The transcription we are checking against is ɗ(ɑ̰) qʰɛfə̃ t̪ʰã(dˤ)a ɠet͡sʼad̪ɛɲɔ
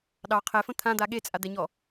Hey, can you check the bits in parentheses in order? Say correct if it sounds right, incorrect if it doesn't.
incorrect: ɑ, incorrect: d̪

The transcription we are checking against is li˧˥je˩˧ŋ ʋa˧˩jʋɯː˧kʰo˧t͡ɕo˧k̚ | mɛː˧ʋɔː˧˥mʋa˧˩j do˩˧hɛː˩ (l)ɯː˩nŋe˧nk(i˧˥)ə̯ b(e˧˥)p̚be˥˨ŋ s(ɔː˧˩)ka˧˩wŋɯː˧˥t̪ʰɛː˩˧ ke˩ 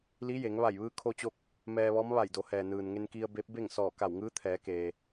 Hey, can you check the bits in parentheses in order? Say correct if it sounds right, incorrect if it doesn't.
incorrect: n, incorrect: i˧, correct, correct

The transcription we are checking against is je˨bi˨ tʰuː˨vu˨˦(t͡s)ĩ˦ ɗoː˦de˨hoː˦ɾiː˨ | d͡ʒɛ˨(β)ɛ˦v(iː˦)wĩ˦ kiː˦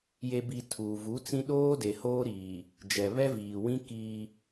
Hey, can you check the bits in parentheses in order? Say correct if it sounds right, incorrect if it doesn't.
correct, correct, incorrect: iː˨

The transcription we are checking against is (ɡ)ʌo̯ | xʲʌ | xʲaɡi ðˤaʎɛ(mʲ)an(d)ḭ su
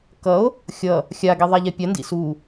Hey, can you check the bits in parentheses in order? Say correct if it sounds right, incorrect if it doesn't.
incorrect: k, incorrect: pʲ, correct

